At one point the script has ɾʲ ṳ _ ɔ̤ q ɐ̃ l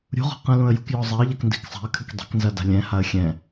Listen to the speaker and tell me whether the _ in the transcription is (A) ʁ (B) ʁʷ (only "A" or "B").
A